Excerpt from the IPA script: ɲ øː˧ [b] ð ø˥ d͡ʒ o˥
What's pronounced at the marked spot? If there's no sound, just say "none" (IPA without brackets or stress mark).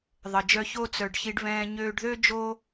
ɖ